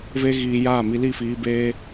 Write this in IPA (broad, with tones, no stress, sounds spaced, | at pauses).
v e˦ ɣ iː˧ j aː˦˨ m i˧ l i˦˨ f iː˧ b eː˧